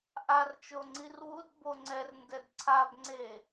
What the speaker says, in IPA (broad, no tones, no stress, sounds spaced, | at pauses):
ʔ a r t͡ʃ o ŋ͡ǀ i r w u d b o ŋ͡ǀ ɛ r n d ɛ d ǀʰ a b ŋ͡ǀ e